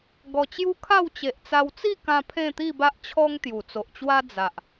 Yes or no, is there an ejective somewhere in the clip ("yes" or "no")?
no